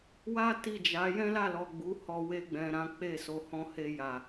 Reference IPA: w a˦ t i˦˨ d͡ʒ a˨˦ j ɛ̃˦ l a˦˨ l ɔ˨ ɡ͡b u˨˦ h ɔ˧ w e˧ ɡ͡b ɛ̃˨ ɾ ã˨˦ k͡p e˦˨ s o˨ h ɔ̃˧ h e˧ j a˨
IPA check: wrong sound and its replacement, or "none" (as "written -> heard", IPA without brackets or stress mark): none